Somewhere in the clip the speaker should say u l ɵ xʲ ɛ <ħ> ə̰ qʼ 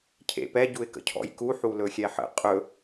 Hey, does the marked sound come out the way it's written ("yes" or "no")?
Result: yes